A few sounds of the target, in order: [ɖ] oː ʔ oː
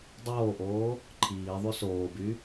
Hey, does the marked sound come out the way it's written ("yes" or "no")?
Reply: no